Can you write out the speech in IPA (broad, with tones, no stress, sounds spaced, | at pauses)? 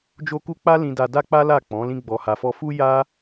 d͡ʒ o˦ k u˦ k͡p a˦ l ĩ˧ d a˧ d a˦ k͡p a˦ l a˦˨ k͡p ɔ̃˨˦ l ĩ˦ ɡ͡b ɔ˧ h a˧ f ɔ˦ f u˦ j a˦